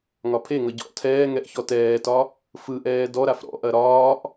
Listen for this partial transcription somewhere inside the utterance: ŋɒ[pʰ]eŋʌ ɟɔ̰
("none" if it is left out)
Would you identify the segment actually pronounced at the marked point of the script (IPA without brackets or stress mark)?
pʰ